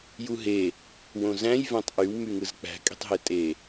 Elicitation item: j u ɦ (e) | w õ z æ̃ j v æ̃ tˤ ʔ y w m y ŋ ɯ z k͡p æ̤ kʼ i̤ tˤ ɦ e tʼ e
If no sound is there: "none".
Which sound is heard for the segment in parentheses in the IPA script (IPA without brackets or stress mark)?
e